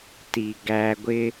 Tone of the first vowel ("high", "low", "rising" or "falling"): low